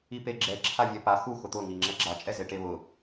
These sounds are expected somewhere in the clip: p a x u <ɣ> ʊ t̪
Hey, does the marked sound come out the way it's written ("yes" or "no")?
no